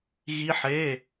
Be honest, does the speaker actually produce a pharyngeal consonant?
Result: yes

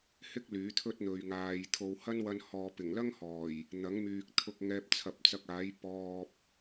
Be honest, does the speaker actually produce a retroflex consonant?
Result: no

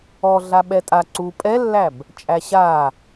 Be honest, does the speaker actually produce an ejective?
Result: yes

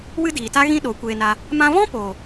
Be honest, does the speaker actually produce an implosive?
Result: yes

